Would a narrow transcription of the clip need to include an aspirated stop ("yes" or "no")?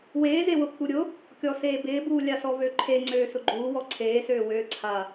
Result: yes